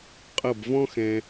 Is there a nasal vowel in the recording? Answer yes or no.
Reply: yes